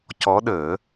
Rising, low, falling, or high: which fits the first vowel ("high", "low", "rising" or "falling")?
rising